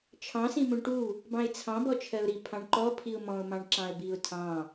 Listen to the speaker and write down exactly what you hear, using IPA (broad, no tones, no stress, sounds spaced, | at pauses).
t͡ʃʰ ɑ̃ s ĩ m ũ ɳ ʈ u | b ɑ̃ ɪ̯ t͡sʰ ɑ̃ b ɔ t͡ʃʰ ɜ ʊ̯ ɾ i pʰ ɑ̃ ɳ ǃ ɔ pʰ i ʊ̯ m ɔ̃ ʊ̯ m ɑ̃ ɳ ǁ ɑ̃ ə̯ b i ʊ̯ tʰ ɑ̃